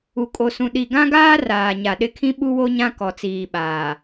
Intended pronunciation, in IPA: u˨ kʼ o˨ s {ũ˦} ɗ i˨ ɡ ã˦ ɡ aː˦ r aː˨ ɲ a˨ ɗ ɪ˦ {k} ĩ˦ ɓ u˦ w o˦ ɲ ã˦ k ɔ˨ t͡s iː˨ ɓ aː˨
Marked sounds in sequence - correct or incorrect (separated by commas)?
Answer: incorrect, incorrect